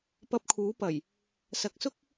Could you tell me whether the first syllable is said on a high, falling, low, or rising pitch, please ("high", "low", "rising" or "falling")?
rising